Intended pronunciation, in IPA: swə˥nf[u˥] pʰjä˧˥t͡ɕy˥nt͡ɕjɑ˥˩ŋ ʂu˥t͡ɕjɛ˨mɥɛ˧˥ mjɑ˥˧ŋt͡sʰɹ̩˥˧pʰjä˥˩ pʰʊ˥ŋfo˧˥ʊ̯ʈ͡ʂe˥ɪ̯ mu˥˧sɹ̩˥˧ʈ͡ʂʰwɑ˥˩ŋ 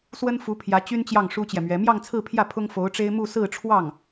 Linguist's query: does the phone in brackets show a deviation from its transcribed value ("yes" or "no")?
yes